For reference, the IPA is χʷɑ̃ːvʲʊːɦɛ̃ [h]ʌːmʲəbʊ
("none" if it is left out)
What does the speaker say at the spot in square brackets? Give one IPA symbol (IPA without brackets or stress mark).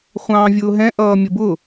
ʔ